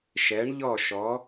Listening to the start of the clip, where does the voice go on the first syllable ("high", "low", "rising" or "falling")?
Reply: rising